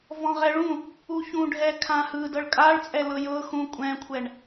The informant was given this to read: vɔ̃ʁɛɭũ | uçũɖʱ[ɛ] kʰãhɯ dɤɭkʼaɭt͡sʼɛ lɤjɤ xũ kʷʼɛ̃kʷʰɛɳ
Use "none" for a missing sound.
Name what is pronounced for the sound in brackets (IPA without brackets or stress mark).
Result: ɛ